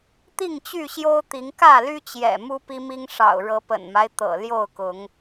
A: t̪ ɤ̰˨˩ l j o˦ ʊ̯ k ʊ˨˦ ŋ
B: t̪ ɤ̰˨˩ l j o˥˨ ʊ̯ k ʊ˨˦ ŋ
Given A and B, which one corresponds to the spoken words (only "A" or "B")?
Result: B